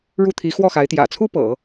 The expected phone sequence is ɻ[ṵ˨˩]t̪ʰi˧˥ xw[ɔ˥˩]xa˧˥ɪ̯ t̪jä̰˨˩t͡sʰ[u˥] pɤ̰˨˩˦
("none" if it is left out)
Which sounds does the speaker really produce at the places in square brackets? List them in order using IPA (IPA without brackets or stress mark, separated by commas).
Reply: u˥˩, ɔ˥˩, u˥